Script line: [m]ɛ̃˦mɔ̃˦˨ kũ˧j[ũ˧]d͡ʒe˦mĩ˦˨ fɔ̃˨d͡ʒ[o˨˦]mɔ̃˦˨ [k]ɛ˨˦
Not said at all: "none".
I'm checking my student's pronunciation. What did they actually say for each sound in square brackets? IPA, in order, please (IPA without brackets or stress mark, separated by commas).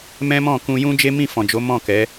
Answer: m, ũ˦, o˨˦, k